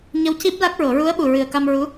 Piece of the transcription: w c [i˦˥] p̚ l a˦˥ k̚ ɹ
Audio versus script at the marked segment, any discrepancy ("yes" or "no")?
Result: no